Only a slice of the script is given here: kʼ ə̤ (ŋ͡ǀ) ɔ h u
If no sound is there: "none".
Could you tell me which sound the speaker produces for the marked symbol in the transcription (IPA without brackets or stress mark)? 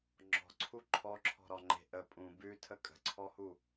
ǀʰ